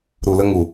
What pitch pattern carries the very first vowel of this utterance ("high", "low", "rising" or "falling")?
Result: low